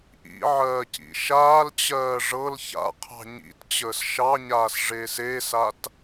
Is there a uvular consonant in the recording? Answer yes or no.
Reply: yes